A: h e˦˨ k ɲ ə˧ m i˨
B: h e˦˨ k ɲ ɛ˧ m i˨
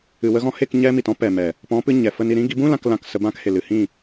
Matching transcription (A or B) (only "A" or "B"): B